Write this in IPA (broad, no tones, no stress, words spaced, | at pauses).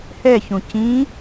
hɛçũ cĩ